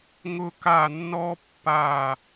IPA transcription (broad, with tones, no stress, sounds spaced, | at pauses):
ŋ ʊ˦˨ k a˦˨ nː ɔ˦ pː a˦˨